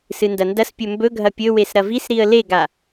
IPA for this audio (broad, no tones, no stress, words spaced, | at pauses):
sɨndɐndɐspʲɵ mbɵɡʱɐ pʲɵwes ɾɐvisɾiə̯ leɡa